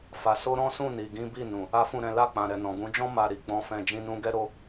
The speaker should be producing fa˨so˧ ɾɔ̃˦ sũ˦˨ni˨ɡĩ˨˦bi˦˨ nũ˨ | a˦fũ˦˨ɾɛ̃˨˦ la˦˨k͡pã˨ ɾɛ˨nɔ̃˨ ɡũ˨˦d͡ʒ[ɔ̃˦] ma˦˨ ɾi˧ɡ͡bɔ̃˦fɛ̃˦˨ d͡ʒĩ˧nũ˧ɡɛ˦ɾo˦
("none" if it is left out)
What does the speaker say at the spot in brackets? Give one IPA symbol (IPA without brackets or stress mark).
ɔ̃˦